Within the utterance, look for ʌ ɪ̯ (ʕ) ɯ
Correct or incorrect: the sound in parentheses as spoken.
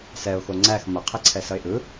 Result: incorrect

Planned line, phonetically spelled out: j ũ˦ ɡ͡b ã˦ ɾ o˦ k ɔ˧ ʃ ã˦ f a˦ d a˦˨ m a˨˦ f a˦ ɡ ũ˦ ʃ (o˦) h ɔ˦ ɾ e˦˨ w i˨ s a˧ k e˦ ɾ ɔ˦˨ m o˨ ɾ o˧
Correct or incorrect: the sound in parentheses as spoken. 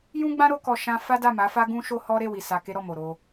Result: correct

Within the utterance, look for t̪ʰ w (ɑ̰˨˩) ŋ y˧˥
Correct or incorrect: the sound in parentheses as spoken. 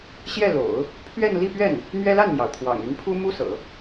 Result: correct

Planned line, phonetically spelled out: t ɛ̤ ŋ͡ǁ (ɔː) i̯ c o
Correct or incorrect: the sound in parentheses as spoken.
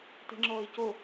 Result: correct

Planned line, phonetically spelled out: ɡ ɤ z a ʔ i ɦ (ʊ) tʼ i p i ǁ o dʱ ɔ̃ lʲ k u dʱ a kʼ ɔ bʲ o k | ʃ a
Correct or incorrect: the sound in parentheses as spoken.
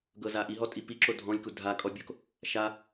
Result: incorrect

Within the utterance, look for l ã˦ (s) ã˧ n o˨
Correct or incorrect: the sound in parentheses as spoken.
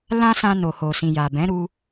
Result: correct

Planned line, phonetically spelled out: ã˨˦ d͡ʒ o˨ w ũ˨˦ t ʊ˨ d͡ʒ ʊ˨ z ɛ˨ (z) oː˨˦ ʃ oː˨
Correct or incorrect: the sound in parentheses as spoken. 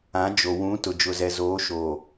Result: correct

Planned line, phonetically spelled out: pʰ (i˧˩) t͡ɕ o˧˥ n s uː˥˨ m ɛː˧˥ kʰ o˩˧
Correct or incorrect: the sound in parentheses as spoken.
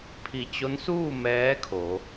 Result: correct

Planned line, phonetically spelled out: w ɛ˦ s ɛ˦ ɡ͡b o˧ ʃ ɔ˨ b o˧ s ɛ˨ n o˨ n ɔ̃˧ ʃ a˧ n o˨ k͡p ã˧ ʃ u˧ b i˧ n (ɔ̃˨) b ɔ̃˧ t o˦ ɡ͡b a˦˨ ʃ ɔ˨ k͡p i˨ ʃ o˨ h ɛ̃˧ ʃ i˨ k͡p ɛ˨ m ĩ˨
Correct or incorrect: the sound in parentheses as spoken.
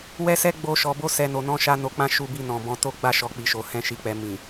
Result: correct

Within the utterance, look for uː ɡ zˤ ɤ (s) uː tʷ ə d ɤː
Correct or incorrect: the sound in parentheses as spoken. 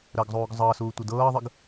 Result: correct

